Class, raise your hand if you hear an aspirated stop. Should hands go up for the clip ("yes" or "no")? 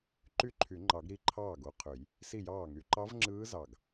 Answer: yes